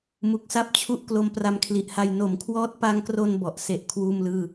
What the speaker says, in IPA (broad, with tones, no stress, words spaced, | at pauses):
mu˨˩k̚sa˥˩p̚t͡ɕʰu˦˥ʔ klo˦˥mpra˧mkʰli˨˩ʔha˧j no˩˦mkʰwɔː˦˥t̚pa˧ŋkro˧n bɔ˨˩ʔ se˦˥ʔ kʰwuː˥˩mlɯː˥˩